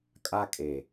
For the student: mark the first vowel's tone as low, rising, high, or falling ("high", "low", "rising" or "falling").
high